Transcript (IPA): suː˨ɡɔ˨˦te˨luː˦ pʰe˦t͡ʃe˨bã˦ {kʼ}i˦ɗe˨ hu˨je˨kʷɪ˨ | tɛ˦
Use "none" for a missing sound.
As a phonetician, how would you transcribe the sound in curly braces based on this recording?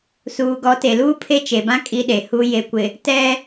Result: kʼ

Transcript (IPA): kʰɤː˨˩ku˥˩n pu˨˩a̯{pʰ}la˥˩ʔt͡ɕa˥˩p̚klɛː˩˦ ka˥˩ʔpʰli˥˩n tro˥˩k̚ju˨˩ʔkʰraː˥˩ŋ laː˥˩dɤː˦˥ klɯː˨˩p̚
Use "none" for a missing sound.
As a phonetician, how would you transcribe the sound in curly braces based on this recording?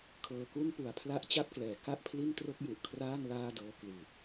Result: pʰ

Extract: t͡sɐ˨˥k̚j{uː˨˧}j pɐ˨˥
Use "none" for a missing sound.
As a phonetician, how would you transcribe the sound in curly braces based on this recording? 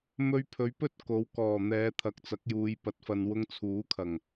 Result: uː˨˧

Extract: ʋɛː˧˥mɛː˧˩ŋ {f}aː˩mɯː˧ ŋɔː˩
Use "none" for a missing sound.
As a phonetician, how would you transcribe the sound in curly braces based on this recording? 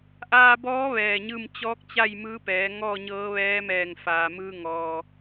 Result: f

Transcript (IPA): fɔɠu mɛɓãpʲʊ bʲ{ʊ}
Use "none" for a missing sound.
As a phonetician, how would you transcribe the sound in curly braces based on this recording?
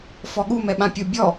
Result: ɔ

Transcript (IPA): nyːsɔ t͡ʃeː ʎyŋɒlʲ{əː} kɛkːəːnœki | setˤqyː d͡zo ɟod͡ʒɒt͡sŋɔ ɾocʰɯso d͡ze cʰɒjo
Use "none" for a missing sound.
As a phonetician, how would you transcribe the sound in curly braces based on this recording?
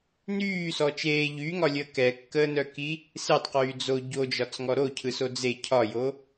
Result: əː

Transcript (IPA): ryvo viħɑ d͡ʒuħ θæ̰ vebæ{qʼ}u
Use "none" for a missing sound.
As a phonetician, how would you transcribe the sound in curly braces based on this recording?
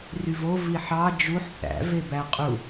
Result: qʼ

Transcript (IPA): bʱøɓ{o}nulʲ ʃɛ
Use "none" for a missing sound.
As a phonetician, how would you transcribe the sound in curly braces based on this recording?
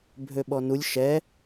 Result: ɔ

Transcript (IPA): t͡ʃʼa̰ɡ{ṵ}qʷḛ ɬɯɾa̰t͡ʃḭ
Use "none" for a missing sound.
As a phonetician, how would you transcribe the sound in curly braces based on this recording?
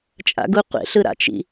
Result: u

